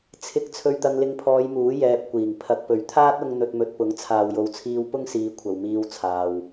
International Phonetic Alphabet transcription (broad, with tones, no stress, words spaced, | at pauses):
t͡sʰɪ˧k̚ t͡sʰɵ˧ɥt̪ɐ˧ŋlɪ˧ŋpʰɔː˨˧j muː˨˥ jɛː˧p̚kʷiː˨˩ŋ pʰɐ˧k̚ pɵ˨˩ɥt̪ʰaː˥t̚ ʊ˧ŋ n̪ɵ˧t̚mɵ˧t̚pʊ˨˥ŋ t͡sʰaː˨wjo˨˧wt͡sʰiː˧w pʊ˥ŋsiː˨˧ kʷʰɐ˨wmiː˧wt͡sʰaː˨w